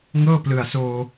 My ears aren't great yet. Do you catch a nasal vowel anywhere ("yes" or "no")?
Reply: no